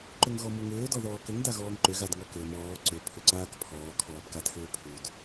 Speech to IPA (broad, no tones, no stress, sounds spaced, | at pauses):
ǃ ʏ ŋ ɣ ɔ m u ŋ ʏː d ɔ ð ɔː k ʏ ŋ d a ɣ ɔː ŋ ǃ ʏ ɣ a d ŋ ɔ k ʏː m ɔː ǀ ʏ pʰ ʏ ǀ aː k pʰ ɔː kʰ ɔː b k a tʰ ʏː pʰ u d